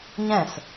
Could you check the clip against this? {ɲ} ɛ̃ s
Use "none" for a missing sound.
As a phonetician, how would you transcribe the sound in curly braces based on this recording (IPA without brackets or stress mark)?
ɲ